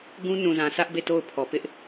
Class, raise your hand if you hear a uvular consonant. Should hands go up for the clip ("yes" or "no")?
no